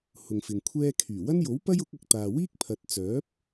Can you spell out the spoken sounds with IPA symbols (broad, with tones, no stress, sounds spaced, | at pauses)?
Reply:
h ʊ˨ ŋ f ɪ˨ ŋ kʷʰ ɛː˥ kʰ yː˨˩ w ɐ˥ n j o˨˥ w p ɐ˥ j ʊ˨˥ k̚ ɐ˨ k̚ t̪ aː˨ w iː˥ k̚ pʰ ɐ˨ t̚ t͡s œː˨˥ p̚